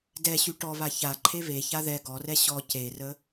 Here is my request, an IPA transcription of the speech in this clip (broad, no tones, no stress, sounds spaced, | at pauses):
d ɛ ɕ y ʈ ɔ β a ç a ǃʰ e β e ç a ð ɛ ɡ ɔ r ɛ ɕ ɔ c e r ə